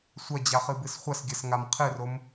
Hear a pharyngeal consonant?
no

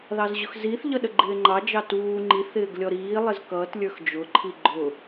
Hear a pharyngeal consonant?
no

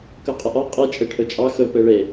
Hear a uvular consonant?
yes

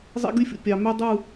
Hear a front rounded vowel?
yes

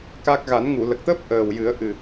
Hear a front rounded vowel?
no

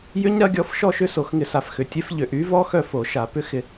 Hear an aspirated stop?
no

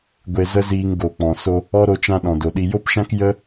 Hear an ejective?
no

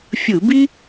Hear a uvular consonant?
no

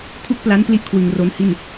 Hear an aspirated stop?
yes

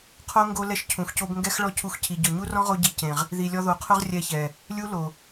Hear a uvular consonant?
yes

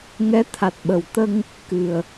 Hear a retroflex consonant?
no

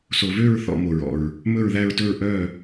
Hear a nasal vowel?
no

